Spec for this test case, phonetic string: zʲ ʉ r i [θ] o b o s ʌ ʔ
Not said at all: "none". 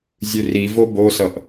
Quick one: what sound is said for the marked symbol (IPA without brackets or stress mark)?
v